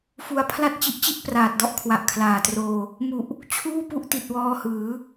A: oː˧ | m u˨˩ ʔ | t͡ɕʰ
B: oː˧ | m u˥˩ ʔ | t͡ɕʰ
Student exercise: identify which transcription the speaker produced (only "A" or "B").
A